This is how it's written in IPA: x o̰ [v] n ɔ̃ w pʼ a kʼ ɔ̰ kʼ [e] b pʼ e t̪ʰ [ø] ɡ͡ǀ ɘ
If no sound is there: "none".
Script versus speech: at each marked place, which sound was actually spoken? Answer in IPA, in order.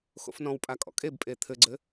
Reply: f, e, ɘ

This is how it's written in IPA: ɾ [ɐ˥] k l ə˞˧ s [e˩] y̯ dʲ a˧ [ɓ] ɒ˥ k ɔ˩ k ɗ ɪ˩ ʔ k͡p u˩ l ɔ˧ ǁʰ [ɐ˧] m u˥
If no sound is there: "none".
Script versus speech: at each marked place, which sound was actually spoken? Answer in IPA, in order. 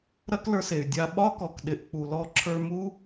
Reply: ɐ˥, e˩, ɓ, ə˞˧

